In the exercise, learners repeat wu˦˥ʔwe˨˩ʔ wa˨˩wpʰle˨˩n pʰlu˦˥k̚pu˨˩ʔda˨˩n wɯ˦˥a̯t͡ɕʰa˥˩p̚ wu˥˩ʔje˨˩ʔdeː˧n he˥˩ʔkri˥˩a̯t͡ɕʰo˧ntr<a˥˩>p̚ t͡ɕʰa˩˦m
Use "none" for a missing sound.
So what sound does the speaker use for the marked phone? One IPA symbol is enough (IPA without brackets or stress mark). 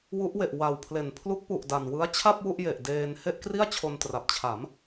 a˨˩